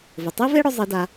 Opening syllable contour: low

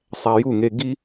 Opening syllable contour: low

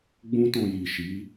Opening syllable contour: high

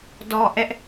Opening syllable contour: low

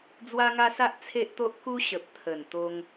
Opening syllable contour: high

